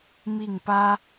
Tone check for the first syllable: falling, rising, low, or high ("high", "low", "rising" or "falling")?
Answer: falling